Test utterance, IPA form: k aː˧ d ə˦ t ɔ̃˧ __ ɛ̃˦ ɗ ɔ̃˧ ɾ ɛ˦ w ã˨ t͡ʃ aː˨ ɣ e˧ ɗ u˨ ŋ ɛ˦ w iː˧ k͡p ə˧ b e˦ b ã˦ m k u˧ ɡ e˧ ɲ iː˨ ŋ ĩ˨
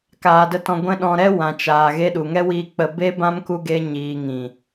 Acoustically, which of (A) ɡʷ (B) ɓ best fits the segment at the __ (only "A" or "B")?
A